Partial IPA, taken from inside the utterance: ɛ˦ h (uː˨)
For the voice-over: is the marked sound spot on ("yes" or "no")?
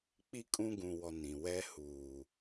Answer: yes